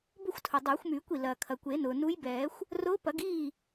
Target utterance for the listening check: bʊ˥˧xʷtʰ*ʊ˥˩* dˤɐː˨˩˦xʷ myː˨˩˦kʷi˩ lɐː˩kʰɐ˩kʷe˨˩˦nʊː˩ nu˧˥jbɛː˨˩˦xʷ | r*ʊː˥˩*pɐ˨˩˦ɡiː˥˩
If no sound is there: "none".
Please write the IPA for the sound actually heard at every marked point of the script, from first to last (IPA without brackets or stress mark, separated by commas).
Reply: ʊ˩, ʊː˧˥